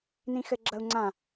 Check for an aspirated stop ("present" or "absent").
absent